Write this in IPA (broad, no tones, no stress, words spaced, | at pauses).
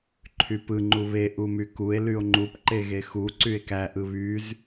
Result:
ǃʰypɯ ŋ͡ǃuβe ʔumykue̯ lyo̯ŋ͡ǃup ǃeɣexu ǀye̯kæ ʔɯβyz